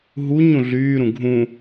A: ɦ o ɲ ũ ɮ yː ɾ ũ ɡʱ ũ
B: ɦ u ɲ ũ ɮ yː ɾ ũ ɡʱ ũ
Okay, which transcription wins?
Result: B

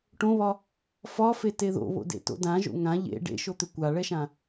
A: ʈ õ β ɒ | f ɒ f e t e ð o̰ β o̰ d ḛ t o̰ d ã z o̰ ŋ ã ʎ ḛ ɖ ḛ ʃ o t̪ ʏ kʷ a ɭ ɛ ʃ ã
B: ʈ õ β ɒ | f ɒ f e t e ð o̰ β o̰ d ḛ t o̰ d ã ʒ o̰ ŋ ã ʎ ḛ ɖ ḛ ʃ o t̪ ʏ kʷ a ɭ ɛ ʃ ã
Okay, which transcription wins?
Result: B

